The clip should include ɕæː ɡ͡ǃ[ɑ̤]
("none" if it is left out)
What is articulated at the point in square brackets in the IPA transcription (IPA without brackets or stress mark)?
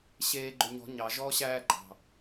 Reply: ɑ̤